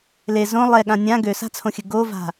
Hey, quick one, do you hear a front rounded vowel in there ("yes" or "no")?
yes